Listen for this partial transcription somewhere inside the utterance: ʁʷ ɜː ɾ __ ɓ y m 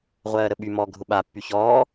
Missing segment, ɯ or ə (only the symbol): ə